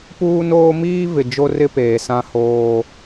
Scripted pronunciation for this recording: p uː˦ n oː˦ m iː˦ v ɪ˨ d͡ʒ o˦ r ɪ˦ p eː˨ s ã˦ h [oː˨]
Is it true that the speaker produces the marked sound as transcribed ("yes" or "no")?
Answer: no